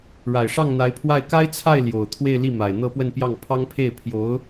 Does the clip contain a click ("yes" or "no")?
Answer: no